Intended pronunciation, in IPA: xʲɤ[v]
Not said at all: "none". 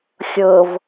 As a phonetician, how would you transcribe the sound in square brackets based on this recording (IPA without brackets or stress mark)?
v